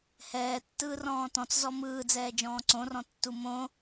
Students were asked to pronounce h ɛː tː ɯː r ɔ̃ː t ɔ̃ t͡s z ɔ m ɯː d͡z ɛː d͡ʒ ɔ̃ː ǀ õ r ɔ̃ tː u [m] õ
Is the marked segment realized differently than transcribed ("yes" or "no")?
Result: no